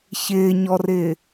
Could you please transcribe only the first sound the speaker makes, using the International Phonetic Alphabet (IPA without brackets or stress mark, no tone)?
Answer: ç